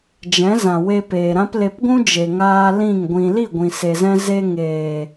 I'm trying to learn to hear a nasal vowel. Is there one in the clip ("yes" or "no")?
yes